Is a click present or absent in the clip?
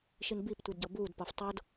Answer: absent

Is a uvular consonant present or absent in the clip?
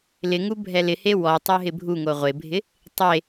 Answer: present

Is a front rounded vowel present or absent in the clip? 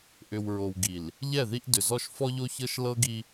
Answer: present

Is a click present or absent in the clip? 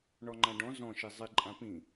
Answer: present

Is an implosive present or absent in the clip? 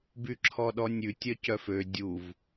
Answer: present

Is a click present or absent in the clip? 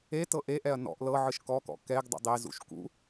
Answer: absent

